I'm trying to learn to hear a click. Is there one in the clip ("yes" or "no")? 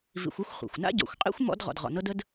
no